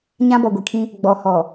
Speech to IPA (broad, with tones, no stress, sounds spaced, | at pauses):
ɲ ã˦ b ɔ˨ ɡʷ i˨ kʰ ĩ˦ | ɡ͡b ɔ˨ h ɔ˨